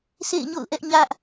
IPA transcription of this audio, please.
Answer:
sʰ ḛ˦˨ ɪ̯ ɲ o̰˦˨ ʊ̯ ʔ ɛ˦ ʔ ɲ ä˦ ʔ

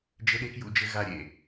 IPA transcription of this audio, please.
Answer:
d͡ʒ ɘ˧ ɗ e˧ k j ṵ˧ d͡ʒ ɘ˧ ɣ a˧ ɾʲ ḛ˨

